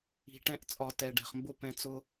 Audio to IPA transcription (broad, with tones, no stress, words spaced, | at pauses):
i̤˨ʈɛ̃˧ʔt͡sʼɒ˨ tɛ˨ɖɛ̤˨χmbʊ˦pɛ̃˧ t͡sʊ˧